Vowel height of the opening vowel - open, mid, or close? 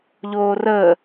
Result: mid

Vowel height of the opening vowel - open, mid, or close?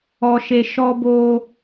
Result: mid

